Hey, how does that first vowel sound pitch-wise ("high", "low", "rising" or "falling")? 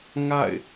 falling